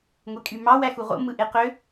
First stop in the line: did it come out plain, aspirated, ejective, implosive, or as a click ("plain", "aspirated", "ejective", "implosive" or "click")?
ejective